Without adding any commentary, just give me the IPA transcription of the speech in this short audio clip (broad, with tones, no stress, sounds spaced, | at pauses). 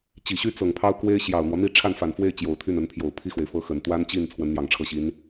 t͡ɕ i˨˩ ɕ y˥ t͡s ɤ˨˩ ŋ pʰ ɑ˥ ʊ̯ k w e˥ ɪ̯ ɕ j ɑ˨˩ ʊ̯ n̪ w ɔ˦ n̪ i˥˧ ʈ͡ʂʰ a˥˩ n f a˨˩ n f w e˥˩ ɪ̯ t͡ɕ j o˨˩ ʊ̯ t̪ʰ y˥˩ n ə˧˥ n pʰ j o˨˩ ʊ̯ pʰ i˥˩ x w e˩ ɪ̯ f ɤ˥ x ə˨˩ n t̪ w a˥ n t͡ɕ i˥˩ n t͡sʰ w ə˧˥ n n̪ j ɑ˨˩ ŋ ʈ͡ʂʰ ɤ˥˩ ɕ i˧˥ n